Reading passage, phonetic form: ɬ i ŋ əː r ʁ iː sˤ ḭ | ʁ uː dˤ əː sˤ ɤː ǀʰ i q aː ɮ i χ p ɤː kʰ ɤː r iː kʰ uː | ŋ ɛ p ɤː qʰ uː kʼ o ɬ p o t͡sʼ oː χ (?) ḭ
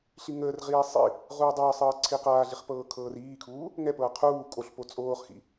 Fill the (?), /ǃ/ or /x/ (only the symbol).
x